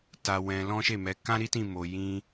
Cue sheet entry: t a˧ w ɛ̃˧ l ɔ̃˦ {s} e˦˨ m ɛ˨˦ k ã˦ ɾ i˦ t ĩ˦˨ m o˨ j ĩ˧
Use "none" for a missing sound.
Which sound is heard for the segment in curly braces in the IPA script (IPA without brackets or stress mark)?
ʃ